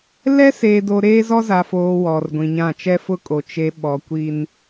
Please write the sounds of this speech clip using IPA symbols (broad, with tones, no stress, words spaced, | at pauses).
lɛ˦seː˨do˨ ɾeː˦zɔ˦za˨foː˨ wɔ˨rɡʷĩ˨ɲã˦˨ t͡ʃɛ˦fʊ˦kʼo˨ t͡ʃe˨ ɓɔ˨kʷi˦n